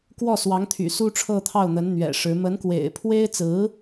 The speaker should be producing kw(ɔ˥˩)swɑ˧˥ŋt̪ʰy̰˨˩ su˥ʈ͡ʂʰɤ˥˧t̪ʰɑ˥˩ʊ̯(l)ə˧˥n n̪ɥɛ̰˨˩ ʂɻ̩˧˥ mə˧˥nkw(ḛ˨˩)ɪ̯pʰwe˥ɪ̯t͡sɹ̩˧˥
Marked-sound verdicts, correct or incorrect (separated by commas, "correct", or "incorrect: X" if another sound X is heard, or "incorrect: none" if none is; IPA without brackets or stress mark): correct, incorrect: n̪, correct